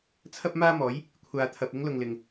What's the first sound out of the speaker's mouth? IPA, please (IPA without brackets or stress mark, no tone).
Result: t͡sʰ